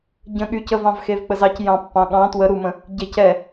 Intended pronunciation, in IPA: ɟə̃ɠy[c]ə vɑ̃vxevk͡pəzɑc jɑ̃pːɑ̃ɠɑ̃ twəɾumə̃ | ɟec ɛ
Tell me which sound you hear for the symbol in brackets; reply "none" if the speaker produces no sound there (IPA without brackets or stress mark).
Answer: c